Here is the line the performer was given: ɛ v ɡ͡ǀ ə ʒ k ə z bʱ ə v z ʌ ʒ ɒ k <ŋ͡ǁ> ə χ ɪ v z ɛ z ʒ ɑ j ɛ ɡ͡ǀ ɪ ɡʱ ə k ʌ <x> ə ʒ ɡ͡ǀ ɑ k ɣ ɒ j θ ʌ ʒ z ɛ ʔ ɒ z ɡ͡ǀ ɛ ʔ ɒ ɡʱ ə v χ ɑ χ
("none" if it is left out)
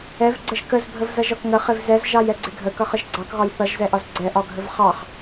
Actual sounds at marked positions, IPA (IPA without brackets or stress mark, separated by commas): ŋ, χ